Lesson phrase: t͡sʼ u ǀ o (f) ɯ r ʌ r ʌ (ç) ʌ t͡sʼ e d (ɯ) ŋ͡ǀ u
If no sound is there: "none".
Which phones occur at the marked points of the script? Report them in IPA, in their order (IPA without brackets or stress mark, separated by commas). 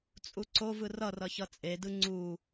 v, ç, ɯ